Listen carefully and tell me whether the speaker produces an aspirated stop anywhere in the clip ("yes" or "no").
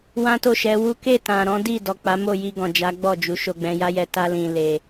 no